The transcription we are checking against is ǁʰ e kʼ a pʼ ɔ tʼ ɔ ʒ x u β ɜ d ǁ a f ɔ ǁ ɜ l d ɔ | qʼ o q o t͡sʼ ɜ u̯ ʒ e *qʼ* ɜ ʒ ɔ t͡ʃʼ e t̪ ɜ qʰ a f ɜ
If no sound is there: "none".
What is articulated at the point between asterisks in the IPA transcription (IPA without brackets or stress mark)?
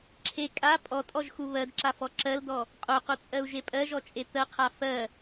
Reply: pʼ